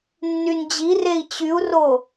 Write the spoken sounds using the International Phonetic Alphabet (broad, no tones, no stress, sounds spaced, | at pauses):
nː y n d͡ʑ i r e i̯ t͡ɕ y u̯ r o